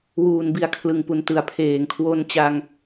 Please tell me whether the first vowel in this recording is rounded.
yes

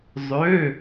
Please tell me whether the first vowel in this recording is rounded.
yes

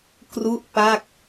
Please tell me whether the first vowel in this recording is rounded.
yes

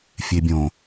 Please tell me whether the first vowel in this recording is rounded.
no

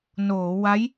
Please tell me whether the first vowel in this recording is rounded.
yes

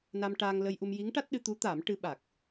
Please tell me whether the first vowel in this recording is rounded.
no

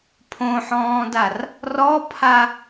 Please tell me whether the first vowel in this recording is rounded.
yes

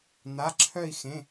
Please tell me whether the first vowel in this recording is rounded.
no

